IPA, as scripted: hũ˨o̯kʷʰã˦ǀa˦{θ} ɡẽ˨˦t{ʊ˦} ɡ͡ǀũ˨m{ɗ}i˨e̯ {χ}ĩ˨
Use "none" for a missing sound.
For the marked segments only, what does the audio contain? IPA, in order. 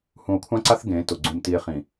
θ, ʊ˨, t, χ

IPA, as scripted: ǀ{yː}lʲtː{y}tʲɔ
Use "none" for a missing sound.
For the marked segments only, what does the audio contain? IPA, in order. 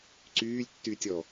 yː, y

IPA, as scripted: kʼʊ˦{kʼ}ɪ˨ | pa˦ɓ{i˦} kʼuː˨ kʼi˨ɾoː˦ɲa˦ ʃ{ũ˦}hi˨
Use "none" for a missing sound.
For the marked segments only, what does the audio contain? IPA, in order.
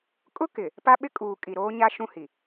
k, ɪ˦, ũ˦

